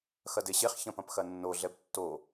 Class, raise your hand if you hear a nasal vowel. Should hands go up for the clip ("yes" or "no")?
yes